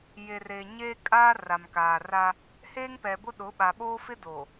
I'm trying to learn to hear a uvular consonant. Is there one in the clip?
no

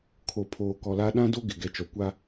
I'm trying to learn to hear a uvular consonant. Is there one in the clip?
no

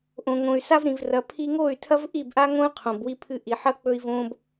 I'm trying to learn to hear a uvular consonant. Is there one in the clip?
yes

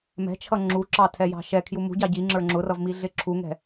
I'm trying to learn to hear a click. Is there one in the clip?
yes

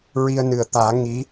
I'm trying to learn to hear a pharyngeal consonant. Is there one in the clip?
no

